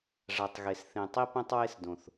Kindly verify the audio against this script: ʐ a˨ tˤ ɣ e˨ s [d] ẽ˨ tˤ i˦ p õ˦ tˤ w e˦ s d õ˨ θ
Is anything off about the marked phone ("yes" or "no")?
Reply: yes